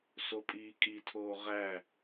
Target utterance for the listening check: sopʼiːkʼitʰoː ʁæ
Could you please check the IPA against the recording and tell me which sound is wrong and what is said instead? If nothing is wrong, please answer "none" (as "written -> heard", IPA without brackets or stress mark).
none